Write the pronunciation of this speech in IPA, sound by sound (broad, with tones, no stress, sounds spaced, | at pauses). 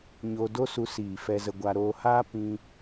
ɲ oː˧ d o˦ s u˧ s iː˨ f ɛ˧ z ə˧ ɡʷ a˧ ɾ oː˧ h aː˦ p ĩ˦